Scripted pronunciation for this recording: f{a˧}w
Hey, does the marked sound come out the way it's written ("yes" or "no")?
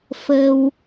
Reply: no